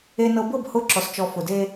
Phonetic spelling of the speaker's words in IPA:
e˨ n ɤ˨ b ɤ˦˨ b h ʊ˦ ǁ ɔ˨ s t͡ʃ ɔ˨ f ʊ˨ d e˦

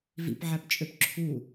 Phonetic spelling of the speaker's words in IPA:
v ḭ p ʕ æ p t͡ʃʼ ø p ǁʰ u

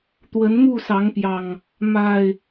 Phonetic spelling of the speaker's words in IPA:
t̪ w ə˨˦ n m u˥˨ s ɑ˨˦ ŋ p j ɑ˨˩ ŋ | m a˨˩ ɪ̯

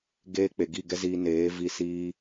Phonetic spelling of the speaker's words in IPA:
ɡ eː˧ k͡p e˨ ɡ i˦˨ ɡ ɛ˦ z iː˧ n eː˨˦ v i˧ s iː˧

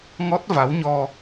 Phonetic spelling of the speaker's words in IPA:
ŋ ɔ˦˥ t̚ v a˨˦ w ɲ ɔ˧

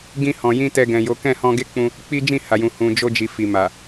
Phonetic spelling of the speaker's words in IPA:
ɡ ĩ˧ h ɔ̃˨ j ĩ˧ t ɛ˧ ɡ ɛ̃˨ j o˨˦ k ɛ̃˦˨ h ɔ̃˧ ɡ e˦ k͡p ũ˧ | k͡p i˦ d͡ʒ ĩ˦˨ h a˨ j ũ˨ h ũ˨ d͡ʒ o˧ d͡ʒ i˨ f i˨ m a˨

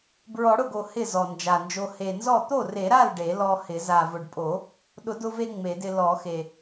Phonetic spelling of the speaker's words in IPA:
b ɹ ɔ˨˩˦ ɽ ʊ˥˩ ɡ o˨˩ h ɪ˥˩ z ɔ˨˩ n d͡ʒ a˨˩ n d͡ʒ o˧ h e˨˩ n z ɔ˥˩ t̪ o˥˩ r e˨˩˦ ɾ a˥˩ l ɖ e˨˩˦ l ɔ˧ h ɪ˨˩˦ z a˨˩ v ʊ˨˩ ɖ pʼ o˨˩˦ | ɗ ʊ˨˩˦ d ʊ˧ v e˧ ŋ͡m e˨˩˦ d ɪ˧ l ɔ˨˩˦ x e˨˩

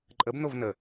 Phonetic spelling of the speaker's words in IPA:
ǃʼ ə b n o v n ə

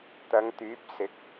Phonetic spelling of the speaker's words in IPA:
t̪ ɐ˨˧ ŋ t̪ yː˨˥ p̚ s ɪ˨˥ k̚

